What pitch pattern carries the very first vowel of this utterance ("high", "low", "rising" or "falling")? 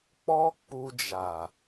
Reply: high